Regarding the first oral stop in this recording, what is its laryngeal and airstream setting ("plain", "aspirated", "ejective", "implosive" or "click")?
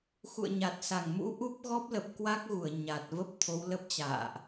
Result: plain